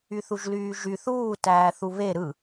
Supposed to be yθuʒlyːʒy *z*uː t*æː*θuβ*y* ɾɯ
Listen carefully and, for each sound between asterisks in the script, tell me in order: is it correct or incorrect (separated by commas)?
incorrect, correct, incorrect